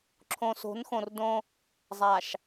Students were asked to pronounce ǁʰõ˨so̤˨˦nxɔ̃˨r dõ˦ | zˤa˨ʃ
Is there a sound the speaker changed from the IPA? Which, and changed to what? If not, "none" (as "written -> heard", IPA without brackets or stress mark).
ɔ̃˨ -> õ˨